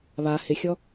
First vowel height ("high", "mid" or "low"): low